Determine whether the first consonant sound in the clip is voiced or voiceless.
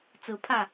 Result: voiceless